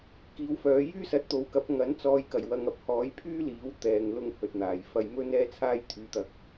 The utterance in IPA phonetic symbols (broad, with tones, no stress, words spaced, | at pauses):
kiː˨˥wfœː˨˧ jyː˥sɐ˨˥t̚t̪o˨˥wkɐ˨˥p̚ ŋɐ˨˥n t͡sɔː˨jkɐ˨˩j wɐ˧ŋ ɐ˨p̚hɔː˨˥jpʰyː˥liː˨˥w t̪ɛː˧ŋlʊ˥ŋ hɵ˨t̚n̪aː˨˩jfɐ˧j mɵ˥n ɛː˥t͡sʰaː˥j t̪ʰyː˨˧t̪ɐ˨k̚